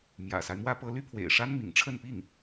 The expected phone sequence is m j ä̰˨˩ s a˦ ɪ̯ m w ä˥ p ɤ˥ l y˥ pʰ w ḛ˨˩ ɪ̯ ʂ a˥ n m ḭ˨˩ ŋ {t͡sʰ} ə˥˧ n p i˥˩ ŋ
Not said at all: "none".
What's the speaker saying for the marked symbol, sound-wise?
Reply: ʈ͡ʂʰ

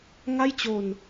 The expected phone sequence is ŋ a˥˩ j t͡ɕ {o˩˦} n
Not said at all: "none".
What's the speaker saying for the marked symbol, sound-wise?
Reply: o˧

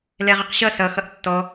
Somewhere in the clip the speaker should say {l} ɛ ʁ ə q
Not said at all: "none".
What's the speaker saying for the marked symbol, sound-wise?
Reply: l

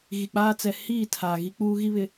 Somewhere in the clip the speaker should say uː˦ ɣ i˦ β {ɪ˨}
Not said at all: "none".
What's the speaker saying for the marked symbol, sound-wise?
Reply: ɪ˨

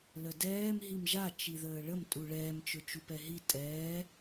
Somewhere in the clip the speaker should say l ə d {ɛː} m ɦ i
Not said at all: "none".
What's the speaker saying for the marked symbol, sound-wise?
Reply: ɛː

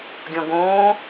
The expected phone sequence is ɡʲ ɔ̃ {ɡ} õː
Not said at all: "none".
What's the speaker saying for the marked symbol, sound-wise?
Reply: ɡ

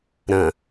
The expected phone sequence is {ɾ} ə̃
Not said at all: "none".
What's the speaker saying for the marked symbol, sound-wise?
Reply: ɾ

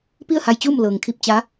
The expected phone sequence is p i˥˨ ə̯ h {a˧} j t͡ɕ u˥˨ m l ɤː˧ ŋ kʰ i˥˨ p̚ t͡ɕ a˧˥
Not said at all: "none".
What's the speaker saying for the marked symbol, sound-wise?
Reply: a˧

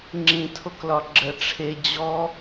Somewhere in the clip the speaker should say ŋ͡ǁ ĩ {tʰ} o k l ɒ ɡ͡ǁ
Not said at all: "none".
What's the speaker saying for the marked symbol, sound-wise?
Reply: tʰ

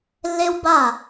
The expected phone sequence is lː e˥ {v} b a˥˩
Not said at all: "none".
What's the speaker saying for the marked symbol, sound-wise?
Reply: w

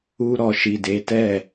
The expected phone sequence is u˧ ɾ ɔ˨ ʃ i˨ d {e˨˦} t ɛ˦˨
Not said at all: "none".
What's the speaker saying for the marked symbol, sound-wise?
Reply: e˨˦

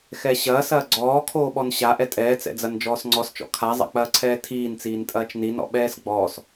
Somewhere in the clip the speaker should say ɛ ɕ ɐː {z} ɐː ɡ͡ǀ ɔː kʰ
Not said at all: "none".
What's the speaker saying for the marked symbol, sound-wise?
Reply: s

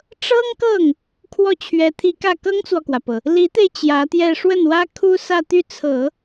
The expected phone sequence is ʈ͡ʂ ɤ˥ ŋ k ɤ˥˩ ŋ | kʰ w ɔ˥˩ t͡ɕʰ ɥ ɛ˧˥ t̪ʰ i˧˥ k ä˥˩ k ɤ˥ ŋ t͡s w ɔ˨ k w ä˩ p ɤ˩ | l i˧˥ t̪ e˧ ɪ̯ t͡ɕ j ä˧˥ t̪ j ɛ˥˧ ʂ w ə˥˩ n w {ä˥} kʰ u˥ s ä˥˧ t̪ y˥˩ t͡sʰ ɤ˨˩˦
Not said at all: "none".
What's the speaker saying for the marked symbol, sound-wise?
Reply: ä˥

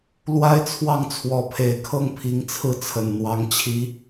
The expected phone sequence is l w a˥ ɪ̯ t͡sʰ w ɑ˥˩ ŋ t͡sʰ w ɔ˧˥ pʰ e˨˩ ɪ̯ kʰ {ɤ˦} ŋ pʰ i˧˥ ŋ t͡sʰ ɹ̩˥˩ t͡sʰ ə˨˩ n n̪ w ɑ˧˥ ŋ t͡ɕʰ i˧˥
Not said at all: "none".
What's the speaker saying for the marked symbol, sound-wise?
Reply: ɤ˥˩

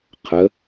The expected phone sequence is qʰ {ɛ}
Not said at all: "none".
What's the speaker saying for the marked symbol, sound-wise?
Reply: ə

